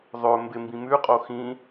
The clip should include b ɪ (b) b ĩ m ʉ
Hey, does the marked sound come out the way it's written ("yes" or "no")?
no